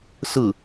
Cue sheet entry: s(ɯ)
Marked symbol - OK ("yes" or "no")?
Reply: yes